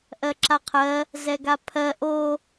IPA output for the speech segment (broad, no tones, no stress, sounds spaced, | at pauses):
ʔ ɜ ǁ a qʰ ɜ | z ɛ ɡ a pʰ ɜ ʔ o